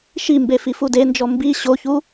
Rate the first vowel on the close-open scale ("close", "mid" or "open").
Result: close